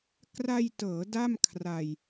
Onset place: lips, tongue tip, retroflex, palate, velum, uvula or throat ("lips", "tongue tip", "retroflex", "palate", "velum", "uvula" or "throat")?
velum